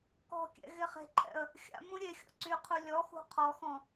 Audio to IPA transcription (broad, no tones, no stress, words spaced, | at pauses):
kɔ̤kʲɛ̰ ɣeχe̤ǃʰɛ̰ə̯ | xʲa̰ mũɾʲexʲɔ̰ ǀyqʰu lʲɔxṳ qʰɔxɔ̃